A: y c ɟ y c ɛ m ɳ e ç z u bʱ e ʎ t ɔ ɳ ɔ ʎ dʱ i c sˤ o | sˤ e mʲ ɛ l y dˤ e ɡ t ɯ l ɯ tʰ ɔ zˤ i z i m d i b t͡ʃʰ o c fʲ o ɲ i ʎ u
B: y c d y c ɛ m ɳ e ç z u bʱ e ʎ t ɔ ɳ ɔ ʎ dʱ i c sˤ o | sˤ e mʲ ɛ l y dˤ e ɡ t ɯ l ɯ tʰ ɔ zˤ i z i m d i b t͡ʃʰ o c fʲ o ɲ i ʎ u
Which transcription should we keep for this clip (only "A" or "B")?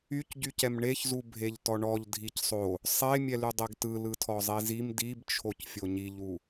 A